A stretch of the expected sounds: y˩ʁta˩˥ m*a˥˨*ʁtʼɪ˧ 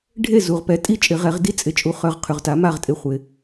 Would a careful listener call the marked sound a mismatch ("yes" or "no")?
no